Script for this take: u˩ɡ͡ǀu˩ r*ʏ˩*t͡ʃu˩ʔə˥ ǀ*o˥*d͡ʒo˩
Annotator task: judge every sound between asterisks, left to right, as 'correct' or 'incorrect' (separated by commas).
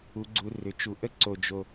correct, incorrect